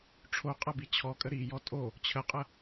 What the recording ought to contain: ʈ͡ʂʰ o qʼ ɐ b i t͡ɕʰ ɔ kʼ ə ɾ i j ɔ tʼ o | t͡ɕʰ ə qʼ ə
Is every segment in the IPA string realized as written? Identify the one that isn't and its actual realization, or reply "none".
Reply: none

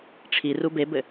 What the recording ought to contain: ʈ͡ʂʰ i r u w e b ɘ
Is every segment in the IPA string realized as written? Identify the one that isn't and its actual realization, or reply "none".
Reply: w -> b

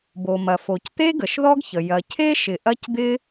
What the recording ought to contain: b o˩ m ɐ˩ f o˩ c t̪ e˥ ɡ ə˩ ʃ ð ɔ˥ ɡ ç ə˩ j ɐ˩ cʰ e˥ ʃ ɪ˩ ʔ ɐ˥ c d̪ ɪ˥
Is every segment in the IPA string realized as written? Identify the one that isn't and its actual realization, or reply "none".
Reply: none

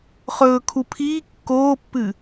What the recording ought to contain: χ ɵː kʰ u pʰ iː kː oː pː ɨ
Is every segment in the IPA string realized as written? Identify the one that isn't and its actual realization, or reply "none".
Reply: none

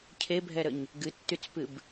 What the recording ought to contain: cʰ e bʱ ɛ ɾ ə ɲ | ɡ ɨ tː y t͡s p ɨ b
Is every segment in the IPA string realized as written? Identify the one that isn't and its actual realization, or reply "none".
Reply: none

